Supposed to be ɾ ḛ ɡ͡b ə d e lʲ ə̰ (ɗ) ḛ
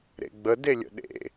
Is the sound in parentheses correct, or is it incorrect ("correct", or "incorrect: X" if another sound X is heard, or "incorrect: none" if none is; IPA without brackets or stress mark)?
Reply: correct